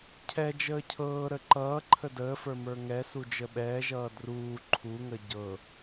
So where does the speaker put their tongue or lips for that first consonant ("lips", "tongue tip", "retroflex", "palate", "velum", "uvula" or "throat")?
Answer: palate